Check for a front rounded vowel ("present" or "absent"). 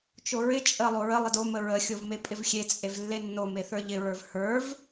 absent